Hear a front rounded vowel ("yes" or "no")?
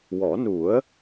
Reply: no